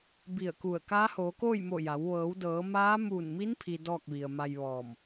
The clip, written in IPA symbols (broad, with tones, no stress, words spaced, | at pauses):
bi˧˩ə̯ku˧˩ə̯ kaː˧˥hoː˩˧koː˥˨jmo˧˩ ja˩˧w ʋɤː˩˧wdɤː˩˧maː˧˥ muː˧˩nmi˧˥npʰi˩ dɔː˥˨k̚ʋi˩ə̯ ma˧jʋɔː˧˩m